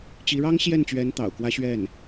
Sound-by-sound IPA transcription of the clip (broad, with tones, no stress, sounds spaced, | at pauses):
t͡ɕ i˧˥ ɻ ɑ˥ ŋ ɕ j ɛ˥˩ n t͡ɕ ɥ ɛ˧˥ n t̪ ɑ̰˨˩ ʊ̯ k w ä˥ ɕ ɥ ɛ˥˩ n